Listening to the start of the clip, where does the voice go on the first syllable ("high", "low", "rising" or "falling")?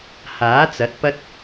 rising